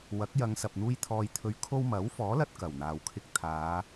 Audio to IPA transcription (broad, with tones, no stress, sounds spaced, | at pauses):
w ɐ˨˥ k̚ j ɐ˨˧ ŋ s ɐ˨ p̚ n̪ uː˧ j t̪ʰ ɔː˧ j t̪ʰ ɵ˧ ɥ kʰ o˥ w m ɐ˨˥ w f ɔː˨˥ l ɐ˧ t̚ k ɐ˨˩ w n̪ aː˨ w kʰ ɪ˧ k̚ t̪ʰ aː˨˧